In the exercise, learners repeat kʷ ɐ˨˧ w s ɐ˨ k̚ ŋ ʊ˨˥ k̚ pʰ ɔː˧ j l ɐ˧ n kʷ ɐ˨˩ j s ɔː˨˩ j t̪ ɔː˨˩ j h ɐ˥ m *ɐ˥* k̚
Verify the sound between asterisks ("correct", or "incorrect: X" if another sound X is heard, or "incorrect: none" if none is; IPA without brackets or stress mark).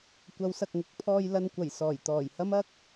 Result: correct